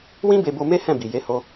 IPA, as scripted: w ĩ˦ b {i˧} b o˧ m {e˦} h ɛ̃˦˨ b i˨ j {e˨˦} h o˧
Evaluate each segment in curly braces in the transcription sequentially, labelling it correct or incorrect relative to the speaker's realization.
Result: incorrect: e˧, correct, correct

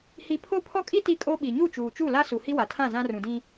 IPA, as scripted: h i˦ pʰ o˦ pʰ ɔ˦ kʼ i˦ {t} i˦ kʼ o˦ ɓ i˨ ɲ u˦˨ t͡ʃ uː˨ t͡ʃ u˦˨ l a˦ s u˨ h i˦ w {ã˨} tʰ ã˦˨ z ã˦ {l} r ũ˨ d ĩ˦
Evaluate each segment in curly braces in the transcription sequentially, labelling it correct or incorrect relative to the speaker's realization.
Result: correct, incorrect: a˨, incorrect: none

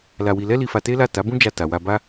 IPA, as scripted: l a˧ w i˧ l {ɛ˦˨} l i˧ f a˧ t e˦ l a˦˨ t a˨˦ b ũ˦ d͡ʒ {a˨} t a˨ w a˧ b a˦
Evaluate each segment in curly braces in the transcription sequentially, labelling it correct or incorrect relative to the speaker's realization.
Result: incorrect: ɛ˦, incorrect: a˧

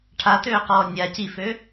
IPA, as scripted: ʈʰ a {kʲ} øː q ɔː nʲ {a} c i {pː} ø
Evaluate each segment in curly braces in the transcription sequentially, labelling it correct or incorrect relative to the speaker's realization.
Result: incorrect: t, correct, incorrect: f

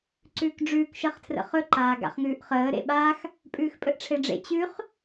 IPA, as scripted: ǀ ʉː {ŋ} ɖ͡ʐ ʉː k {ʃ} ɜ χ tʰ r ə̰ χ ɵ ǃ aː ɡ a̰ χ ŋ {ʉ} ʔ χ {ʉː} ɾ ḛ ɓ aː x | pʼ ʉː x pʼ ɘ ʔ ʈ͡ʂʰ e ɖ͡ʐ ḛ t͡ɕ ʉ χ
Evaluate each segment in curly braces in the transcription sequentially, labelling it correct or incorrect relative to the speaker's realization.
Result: incorrect: k, correct, incorrect: ʉː, incorrect: əː

